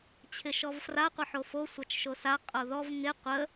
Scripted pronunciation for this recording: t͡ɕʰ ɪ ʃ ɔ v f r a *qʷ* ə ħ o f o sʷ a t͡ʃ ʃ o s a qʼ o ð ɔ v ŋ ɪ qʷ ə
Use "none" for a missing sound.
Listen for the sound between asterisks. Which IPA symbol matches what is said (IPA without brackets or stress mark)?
qʷ